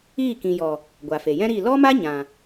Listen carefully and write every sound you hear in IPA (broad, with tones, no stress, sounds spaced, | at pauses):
iː˦˨ k ĩ˨ j ɔ˨ | ɡʷ a˨ f e˨ j ɛ̃˦ ɾ i˦˨ l ɔ˦ m a˦ ɲ ã˨